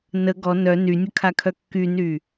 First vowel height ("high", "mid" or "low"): mid